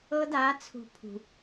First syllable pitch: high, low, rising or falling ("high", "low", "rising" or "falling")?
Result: high